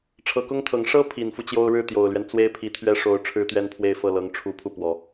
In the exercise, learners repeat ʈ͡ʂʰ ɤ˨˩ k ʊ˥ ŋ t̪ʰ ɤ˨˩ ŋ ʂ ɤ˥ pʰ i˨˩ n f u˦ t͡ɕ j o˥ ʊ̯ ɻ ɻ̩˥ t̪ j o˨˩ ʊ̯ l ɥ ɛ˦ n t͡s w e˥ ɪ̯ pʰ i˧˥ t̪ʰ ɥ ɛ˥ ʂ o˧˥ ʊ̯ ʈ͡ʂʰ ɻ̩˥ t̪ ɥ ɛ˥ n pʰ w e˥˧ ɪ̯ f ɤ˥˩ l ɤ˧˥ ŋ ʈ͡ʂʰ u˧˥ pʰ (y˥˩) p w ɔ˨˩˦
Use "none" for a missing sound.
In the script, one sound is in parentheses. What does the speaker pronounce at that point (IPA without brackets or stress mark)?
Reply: u˥˩